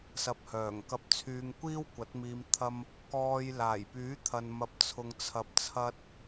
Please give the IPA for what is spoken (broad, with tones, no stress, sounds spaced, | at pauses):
s ɐ˨ p̚ h œː˨˩ ŋ k ɐ˧ p̚ t͡sʰ yː˧ ŋ kʷ iː˥ w kʷ ɐ˨˥ t̚ m iː˧ m t̪ʰ ɐ˥ m | k ɔː˧ j l aː˨˩ j p yː˨˥ t̪ʰ ɐ˨ n m ɐ˧ p̚ t͡sʰ ʊ˧ ŋ t͡sʰ ɐ˧ p̚ t͡sʰ ɐ˥ t̚